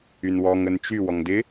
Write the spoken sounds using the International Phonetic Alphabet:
y n w ɔ ŋ ə n t͡ʃ y w ɔ ŋ d ɪ

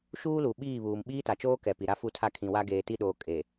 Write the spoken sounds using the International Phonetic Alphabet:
ʃ uː˦ l u˨ ɓ iː˦˨ β uː˨ m ɓ iː˦ t a˨ t͡ʃ oː˦ k ɛ˨ p i˨ ɾ a˦ f u˦˨ tʰ a˦˨ kʰ ĩ˨ w a˦ ɡ eː˨ t i˦˨ ɗ oː˨ kʼ e˨

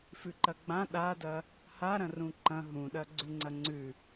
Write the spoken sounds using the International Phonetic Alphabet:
f ʉ ǃ ɐ ɡ͡b ã ɗ a d ɐ | h a ɾ ɐ̃ r ũ ǃ ɐ̃ ɦ ũ ɗ ɐ ɡ͡ǀ ʉ ŋ͡ǀ ɐ ŋ͡ǀ ʉ

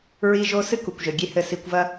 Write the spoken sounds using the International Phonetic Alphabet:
ɹ i˦ ʒ o˦ s ɨ˦ k u˨ kʷ ʒ ɘ˨ ɡʲ e˦ h ɘ˧ s i˧ kʷ v ɐ˦

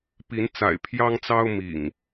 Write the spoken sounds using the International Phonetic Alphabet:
p i˨˦ n t͡s a̰˨˩ ɪ̯ pʰ j ɑ˦ ŋ t͡s ɑ˦ ʊ̯ m ḭ˨˩ ŋ

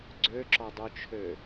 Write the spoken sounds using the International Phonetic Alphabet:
ɡ͡ǀ ø ǁ ɔ dˤ u t͡ʃʰ ø

